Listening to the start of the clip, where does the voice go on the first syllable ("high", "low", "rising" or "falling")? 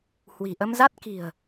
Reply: low